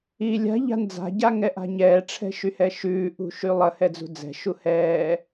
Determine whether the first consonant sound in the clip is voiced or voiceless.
voiced